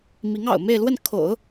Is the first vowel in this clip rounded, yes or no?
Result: no